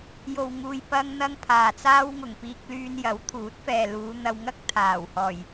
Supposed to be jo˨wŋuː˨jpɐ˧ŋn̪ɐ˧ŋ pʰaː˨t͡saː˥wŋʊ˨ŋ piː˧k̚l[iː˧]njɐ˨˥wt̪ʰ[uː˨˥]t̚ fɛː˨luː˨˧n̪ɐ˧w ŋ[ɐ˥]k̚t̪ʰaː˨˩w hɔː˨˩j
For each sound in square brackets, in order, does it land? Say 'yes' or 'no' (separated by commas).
no, yes, yes